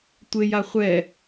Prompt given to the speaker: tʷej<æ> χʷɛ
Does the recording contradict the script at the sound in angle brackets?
yes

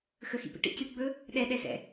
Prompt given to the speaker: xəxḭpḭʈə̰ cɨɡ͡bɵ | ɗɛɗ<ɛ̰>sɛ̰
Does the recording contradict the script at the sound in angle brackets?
yes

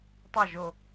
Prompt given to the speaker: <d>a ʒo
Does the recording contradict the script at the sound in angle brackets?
yes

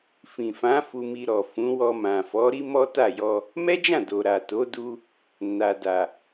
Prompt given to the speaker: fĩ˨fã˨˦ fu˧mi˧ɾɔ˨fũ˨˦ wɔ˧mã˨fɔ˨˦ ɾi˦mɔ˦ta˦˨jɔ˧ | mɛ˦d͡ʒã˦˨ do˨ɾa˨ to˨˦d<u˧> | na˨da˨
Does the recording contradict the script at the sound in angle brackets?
no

